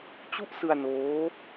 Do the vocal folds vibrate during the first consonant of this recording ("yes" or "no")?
no